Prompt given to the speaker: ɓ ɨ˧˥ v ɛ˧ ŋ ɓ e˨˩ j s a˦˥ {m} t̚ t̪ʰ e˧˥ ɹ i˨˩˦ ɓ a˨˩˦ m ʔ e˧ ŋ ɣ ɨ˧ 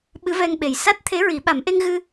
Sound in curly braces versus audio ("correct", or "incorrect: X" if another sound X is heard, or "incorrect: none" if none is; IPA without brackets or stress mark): incorrect: none